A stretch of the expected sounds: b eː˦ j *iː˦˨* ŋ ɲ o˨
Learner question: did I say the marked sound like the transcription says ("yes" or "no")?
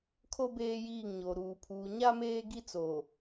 yes